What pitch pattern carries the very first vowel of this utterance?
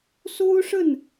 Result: high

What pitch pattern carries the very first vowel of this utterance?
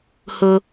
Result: high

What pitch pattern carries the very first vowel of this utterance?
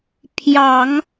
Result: low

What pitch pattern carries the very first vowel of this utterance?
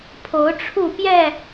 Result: rising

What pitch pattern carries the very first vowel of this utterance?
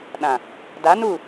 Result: low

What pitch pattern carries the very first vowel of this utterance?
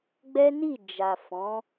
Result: high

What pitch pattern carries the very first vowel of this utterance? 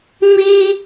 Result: high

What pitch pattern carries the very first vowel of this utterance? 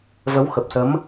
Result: rising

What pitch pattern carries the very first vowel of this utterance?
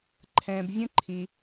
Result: low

